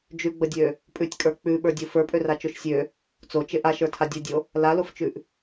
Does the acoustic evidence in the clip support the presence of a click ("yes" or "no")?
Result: no